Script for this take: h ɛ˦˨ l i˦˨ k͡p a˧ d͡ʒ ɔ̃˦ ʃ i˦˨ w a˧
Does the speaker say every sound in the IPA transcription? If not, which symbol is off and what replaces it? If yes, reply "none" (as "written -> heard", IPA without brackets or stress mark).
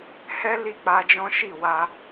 ɛ˦˨ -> ɛ˦